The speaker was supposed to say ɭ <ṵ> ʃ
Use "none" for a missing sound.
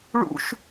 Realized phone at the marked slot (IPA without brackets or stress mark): ṵ